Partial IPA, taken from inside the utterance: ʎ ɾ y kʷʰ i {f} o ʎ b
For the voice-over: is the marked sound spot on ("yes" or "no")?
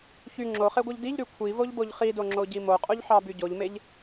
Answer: no